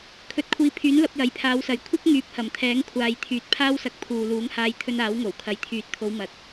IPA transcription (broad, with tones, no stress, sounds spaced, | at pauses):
kʰ ɵ˨˥ t̚ kʷʰ iː˨˧ pʰ yː˨˥ n l ɐ˨˥ p̚ j ɐ˨˧ j pʰ aː˨˧ w s ɐ˨˥ j kʷʰ ɪ˥ k̚ ŋ yː˨˥ p̚ h ɐ˨˩ m t̪ʰ ɛː˨˥ ŋ kʷʰ aː˨ j t̪ʰ yː˨ t̚ pʰ aː˥ w s ɐ˧ k̚ pʰ uː˨ l uː˨˥ ŋ h aː˧ j t̪ʰ ɵ˧ n aː˨˥ w ŋ o˨˩ w kʰ ɐ˨ j t̪ʰ yː˨˥ t̚ t̪ʰ o˨˧ w m ɐ˨ t̚